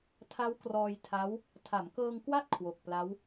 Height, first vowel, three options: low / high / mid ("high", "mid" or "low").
low